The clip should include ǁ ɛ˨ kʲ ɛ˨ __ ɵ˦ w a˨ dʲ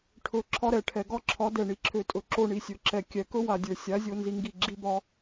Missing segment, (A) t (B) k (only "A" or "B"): B